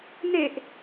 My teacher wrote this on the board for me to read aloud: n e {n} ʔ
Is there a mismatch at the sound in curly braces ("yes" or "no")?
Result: yes